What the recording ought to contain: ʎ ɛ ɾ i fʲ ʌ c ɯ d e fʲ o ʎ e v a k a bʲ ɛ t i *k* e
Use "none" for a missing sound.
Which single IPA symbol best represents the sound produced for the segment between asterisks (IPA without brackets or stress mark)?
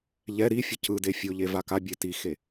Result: x